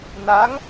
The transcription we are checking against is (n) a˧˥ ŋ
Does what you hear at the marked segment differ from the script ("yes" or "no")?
no